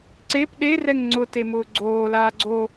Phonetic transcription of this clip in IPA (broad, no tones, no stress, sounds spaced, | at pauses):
ǀ e p ɗ e r ɛ ŋ ŋ͡ǀ ʊ t e m ʊː ɡ͡ǀ oː l aː ɡ͡ǀ o